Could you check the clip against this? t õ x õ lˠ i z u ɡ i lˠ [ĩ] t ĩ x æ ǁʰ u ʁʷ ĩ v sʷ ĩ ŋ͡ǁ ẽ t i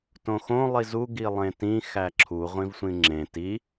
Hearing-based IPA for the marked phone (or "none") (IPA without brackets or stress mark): ẽ